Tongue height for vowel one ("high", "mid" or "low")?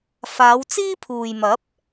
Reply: low